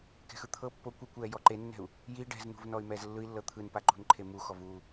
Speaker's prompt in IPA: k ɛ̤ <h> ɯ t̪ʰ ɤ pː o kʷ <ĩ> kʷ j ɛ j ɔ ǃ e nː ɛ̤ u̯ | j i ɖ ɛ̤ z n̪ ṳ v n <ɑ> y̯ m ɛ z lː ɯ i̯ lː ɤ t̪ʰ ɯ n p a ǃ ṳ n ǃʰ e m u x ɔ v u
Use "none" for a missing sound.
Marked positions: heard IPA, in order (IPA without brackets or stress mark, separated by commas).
x, i, ɔ